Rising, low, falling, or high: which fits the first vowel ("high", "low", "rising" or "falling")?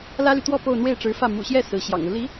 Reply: high